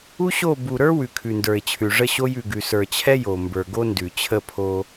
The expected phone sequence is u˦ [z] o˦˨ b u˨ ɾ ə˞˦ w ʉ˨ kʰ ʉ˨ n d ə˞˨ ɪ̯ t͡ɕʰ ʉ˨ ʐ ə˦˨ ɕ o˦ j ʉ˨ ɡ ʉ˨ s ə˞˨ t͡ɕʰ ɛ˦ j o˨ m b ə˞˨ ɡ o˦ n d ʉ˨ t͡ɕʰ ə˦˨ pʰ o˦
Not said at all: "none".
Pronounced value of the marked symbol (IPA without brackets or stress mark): ɕ